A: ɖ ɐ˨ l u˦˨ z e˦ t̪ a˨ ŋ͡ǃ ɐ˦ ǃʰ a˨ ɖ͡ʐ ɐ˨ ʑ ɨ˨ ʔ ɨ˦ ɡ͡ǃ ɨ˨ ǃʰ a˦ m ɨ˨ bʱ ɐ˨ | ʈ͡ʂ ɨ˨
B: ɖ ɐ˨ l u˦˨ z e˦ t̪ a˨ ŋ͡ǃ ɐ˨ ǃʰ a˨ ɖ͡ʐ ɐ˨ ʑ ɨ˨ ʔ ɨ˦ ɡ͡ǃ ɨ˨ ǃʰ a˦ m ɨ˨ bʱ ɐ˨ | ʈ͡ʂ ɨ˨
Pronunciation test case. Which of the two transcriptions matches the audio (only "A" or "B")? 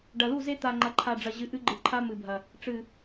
B